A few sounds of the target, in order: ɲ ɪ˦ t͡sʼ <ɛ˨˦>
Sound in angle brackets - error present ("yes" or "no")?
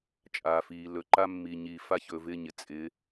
yes